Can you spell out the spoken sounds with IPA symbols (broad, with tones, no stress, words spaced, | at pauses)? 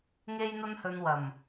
ŋe˥jn̪ɐ˥nhɵ˧n wɐ˨˩m